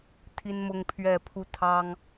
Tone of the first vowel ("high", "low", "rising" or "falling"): high